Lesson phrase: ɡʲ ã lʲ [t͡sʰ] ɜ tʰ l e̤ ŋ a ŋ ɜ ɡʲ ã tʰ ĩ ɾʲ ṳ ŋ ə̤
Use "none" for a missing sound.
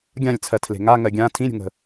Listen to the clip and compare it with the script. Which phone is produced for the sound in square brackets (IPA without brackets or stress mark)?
t͡sʰ